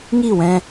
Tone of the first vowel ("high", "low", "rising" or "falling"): falling